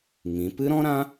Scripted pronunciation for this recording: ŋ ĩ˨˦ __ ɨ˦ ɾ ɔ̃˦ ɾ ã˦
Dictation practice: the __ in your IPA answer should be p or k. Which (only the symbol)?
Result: p